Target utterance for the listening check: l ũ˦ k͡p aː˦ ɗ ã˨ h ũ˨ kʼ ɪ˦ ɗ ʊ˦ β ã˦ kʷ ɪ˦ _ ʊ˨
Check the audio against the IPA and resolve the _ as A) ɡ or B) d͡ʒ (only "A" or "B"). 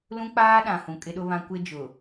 B